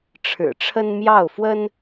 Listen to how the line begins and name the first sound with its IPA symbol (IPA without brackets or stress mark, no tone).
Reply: ʈ͡ʂʰ